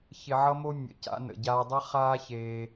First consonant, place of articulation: palatal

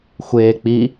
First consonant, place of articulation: velar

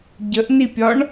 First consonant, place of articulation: palatal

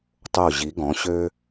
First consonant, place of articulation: alveolar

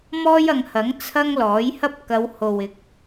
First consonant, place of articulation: labial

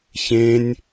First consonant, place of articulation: palatal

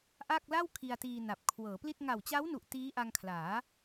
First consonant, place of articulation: glottal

